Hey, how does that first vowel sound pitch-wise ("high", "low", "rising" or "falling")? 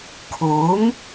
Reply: rising